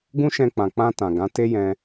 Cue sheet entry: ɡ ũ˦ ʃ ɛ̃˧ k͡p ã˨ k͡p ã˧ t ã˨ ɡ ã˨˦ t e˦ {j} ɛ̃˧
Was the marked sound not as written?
no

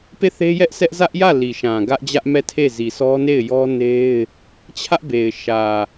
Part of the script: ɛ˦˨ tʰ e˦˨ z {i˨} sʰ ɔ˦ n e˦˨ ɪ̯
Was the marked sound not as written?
no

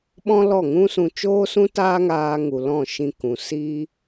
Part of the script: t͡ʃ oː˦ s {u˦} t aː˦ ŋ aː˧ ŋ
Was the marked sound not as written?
yes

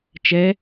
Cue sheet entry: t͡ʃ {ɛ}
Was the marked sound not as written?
no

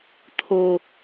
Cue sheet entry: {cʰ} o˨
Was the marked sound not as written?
yes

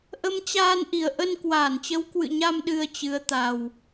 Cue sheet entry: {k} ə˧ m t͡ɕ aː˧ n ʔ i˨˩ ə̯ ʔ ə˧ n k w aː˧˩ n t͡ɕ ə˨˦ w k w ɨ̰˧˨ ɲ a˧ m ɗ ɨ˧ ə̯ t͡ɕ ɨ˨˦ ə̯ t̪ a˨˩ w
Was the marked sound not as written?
yes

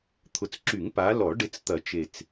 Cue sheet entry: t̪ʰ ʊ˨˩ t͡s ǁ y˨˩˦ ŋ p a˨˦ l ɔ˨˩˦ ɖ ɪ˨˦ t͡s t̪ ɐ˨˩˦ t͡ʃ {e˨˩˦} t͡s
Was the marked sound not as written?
yes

